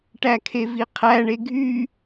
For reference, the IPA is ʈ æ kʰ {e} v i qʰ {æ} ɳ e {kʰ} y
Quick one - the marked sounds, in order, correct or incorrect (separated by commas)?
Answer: correct, correct, incorrect